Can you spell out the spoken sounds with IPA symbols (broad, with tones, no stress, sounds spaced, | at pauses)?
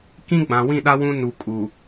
k ĩ˦ ɡ͡b ã˨ w ĩ˦˨ ɗ a˦ w ũ˦ n u˨ kʼ u˨